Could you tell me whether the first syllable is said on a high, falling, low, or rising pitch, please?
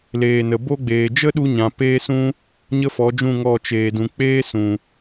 low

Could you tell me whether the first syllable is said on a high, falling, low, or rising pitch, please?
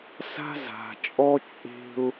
high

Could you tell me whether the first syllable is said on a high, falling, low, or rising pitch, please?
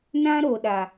high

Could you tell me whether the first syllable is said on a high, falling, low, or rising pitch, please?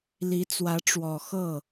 rising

